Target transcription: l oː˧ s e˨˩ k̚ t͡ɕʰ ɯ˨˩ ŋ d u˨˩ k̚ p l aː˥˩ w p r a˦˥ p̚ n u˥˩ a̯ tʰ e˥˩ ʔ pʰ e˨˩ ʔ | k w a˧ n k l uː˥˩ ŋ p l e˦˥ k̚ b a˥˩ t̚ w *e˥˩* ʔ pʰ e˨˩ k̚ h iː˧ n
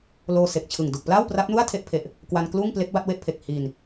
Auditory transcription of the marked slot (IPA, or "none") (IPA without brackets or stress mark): e˥˩